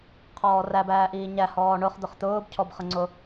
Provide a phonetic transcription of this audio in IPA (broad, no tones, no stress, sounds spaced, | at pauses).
qʰ ɔː r æ b æː ʔ iː ɲ æ h ɔː ɳ ʊ χ d̪ ʊ χ t̪ ʊː b cʰ ɔ b χ ə ŋ͡ǀ ʊ